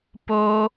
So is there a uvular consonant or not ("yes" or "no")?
no